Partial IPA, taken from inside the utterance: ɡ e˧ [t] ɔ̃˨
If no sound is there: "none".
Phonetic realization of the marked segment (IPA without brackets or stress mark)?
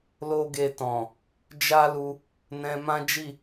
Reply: t